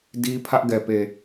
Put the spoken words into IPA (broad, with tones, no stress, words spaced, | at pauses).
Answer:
di˦ pʰä˦ʔɡɛ˨pe˨